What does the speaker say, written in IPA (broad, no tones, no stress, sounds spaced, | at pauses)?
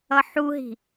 ʌ ħ u ɦ i̤